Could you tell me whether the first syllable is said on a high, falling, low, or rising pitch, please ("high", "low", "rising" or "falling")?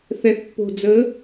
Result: low